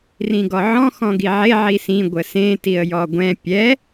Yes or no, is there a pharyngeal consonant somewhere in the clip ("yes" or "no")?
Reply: yes